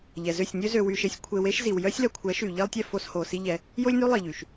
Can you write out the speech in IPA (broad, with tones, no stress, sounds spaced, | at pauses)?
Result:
ʎ ɛ˨ z ø˦˨ sʲ nʲ ø˦ z ø˧ w y˧ ʃ e˧ sʲ kʷʰ e˧ w e˦ ʃ z i˨ w j œ˦ sʲ l œ˨ kʷʰ ɛ˨˦ ʃ y˨ ʎ i˦ lˠ tʲ ɛ˧ f o˧ s h o˨ s i˦ ʎ ɛ˧ | j o˦ lʲ n y˦ lˠ i˨ ʎ y˨ ʃ